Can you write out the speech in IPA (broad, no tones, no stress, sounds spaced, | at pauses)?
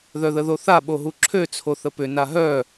ð œ ð ə ð o θ a ɓ o ɦ u ǁʰ ø t͡sʰ o θ ə p ʏ n a ɦ œ